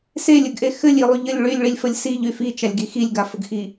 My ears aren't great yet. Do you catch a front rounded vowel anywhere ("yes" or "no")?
yes